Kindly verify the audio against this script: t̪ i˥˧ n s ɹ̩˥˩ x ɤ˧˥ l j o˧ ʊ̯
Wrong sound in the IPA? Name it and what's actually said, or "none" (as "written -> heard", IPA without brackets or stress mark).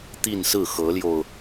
none